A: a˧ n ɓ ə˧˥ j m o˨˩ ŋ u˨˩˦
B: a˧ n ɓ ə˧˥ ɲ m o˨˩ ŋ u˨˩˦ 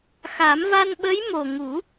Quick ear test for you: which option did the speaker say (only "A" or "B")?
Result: A